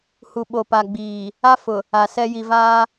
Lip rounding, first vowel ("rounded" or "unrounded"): rounded